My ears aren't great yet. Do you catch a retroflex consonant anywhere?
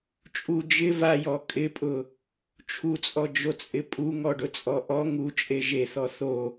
yes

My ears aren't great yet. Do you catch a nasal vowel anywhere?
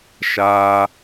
no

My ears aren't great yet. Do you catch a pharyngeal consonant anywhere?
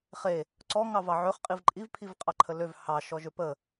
yes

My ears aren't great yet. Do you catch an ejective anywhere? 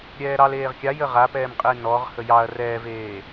yes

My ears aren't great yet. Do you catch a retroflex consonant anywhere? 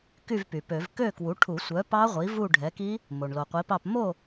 yes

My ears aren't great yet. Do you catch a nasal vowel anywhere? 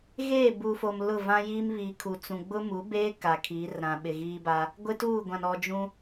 yes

